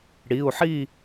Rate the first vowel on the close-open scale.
close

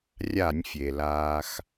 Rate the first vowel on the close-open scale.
open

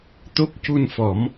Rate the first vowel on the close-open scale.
mid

